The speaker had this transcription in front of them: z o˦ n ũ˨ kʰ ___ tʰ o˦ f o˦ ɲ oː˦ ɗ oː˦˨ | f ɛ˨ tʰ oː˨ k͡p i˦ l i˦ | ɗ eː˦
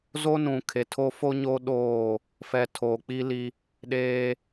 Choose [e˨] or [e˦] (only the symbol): e˨